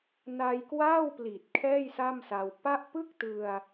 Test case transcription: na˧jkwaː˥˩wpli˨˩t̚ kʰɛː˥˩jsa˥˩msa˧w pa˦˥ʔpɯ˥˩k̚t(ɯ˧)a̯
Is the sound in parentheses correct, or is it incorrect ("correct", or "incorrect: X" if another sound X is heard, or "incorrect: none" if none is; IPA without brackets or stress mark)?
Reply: correct